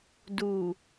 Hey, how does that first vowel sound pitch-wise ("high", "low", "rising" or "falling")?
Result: low